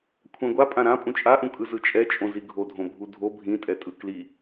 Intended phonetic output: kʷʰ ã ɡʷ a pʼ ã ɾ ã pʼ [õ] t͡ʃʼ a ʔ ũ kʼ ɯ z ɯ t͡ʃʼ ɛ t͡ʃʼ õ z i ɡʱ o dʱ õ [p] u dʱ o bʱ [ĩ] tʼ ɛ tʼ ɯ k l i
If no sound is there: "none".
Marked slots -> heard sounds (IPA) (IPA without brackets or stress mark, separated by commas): ũ, bʱ, ĩ